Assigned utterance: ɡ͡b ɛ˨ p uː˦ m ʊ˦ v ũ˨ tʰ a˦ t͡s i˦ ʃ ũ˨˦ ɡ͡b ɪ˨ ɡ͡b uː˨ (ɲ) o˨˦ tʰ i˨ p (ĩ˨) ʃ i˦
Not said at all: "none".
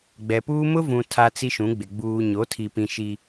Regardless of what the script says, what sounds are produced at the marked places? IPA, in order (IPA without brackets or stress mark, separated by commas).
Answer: ɲ, ĩ˨